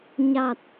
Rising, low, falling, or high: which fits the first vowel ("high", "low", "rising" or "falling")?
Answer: low